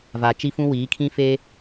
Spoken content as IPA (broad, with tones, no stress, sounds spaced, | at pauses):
v a˨ t͡ʃ i˦ f ũ˦ w iː˨˦ kʰ ĩ˦ f e˦